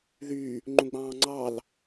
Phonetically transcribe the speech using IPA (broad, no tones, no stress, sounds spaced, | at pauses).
ð y | ŋ͡ǃ ũ ɡ͡b ɑ̃ː ŋ͡ǀ ɑ l